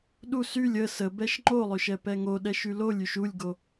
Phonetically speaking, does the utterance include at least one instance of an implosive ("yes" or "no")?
yes